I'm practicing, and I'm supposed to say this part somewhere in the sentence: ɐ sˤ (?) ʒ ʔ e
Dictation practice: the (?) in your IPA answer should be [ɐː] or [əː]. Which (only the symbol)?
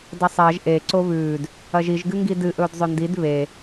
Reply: ɐː